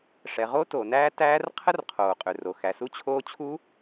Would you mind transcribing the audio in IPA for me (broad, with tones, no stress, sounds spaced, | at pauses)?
ʂ ɛ˩ ʁ o˦˥ t oː˩ n æː˦˥ t æː˦˥ r qʰ ə˦˥ r qʰ oː˩ qʼ ø˩ r o˩ x æ˩ s u˦˥ t͡ɕʰ oː˦˥ t͡ɕʰ u˦˥